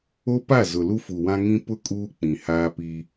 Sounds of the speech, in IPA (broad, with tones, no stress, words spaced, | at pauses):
o˦pa˦˨ zʊ˨lu˦fu˨wã˦ ŋĩ˦ pʊ˦ kʼuː˦k͡pĩ˨haː˦ pi˦